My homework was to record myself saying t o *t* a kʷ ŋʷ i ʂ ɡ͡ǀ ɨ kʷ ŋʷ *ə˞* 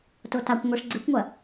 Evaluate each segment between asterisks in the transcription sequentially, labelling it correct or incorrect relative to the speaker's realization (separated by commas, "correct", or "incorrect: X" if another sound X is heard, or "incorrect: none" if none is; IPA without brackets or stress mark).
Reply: correct, incorrect: ɐ